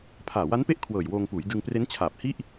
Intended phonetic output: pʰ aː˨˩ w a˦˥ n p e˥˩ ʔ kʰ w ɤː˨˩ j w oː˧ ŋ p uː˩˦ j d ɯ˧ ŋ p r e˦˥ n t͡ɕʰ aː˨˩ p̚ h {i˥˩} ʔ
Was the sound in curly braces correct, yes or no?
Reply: yes